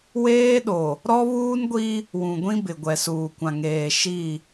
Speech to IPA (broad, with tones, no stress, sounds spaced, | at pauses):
w eː˦ ɗ o˨ | ɾ ɔ˦ β uː˦ n ɡʷ i˦ | w ũ˨ ɡʷ ĩ˦ b ɪ˨ ɡʷ ɛ˨ s uː˨ kʷ ã˨ ŋ eː˨ ʃ i˦˨